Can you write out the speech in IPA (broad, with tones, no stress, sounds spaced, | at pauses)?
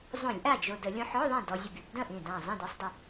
zˤ õ˧˩˧ lʲ ʔ a˥˩ d͡ʒ o˧˩ d ə˧˩˧ lʲ õ˧ ħ ɔ˧˥˧ ðˤ ĩ˥˩ d ɔ˧ zʲ ə˧˩ b y˧˩˧ b d ə̃˥˩ ʔ ĩ˧˩ d ã˧˩ zˤ ĩ˥˩ d ɛ˧ sˤ dˤ ə˧˩